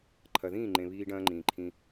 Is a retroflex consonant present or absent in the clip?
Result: present